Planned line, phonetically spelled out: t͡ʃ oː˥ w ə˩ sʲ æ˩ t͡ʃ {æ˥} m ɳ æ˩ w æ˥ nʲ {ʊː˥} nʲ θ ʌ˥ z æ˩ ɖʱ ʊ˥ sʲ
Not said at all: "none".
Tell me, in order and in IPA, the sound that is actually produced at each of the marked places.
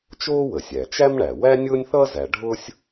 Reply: æ˥, ʊː˥

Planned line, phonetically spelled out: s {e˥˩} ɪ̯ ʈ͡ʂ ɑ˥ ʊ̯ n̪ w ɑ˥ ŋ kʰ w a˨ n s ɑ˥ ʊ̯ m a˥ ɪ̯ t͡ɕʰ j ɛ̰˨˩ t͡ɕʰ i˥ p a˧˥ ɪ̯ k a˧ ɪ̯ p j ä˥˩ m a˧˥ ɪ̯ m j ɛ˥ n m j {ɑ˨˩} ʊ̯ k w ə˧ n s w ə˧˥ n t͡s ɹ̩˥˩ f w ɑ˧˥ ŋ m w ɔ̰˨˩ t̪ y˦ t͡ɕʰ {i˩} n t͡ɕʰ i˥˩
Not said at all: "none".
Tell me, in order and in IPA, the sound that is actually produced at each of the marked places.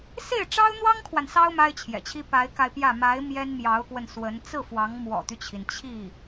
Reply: e˥˩, ɑ˧˥, i˩

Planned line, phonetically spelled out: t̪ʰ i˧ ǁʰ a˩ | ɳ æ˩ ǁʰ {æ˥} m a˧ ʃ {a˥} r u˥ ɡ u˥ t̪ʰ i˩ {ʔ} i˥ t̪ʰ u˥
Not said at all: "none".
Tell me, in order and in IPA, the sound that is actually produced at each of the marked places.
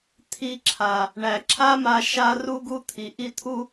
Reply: a˥, a˥, ʔ

